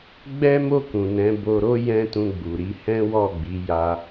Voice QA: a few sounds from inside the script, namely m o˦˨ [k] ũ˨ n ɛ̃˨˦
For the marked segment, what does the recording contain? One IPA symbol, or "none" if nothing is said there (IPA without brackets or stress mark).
k